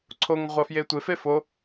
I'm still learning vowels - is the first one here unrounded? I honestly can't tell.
no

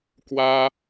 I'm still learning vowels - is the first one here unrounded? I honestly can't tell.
yes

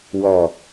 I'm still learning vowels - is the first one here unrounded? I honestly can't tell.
no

